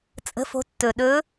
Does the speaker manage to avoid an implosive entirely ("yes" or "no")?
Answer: no